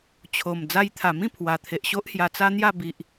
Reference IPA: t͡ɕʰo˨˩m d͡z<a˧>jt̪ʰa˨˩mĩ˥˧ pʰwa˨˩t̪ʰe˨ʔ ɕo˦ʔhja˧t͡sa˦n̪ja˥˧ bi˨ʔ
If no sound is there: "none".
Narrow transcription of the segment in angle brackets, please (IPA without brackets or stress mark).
a˧